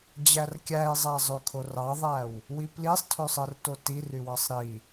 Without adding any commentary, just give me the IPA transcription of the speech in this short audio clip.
d͡ʑ æ r kʲ æ i̯ zˤ æ zˤ ø kʰ o r ɑ ðˤ æ w | w i p l i sˤ tʰ ø sˤ ɯ r t o t i r y w ɑ sˤ ɾ i

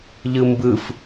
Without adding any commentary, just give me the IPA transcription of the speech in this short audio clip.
ʎ ɯ m b ɯ f

